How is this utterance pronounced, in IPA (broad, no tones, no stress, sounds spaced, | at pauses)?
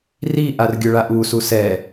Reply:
r i ʔ a r ɡʲ ʊ ɭ a ʔ u s u s ɛ